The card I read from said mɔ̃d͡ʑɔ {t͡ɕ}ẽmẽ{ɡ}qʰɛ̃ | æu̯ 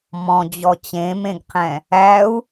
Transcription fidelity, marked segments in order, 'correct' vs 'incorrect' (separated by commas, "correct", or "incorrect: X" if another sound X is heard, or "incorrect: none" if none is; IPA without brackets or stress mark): correct, correct